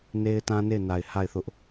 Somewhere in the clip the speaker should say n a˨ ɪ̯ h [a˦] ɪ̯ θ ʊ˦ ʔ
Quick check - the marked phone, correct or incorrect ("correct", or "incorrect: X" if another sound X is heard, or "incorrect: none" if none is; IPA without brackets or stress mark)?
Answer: incorrect: a˦˨